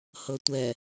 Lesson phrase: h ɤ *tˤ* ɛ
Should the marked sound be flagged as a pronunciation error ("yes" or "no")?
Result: yes